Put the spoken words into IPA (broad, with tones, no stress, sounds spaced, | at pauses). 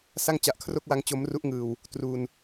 s a˥˩ ŋ t͡ɕ a˨˩ ʔ kʰ r o˥˩ k̚ w a˦˥ ŋ t͡ɕ o˦˥ m r u˦˥ ʔ ŋ ɯː˨˩ w | t r u˧ n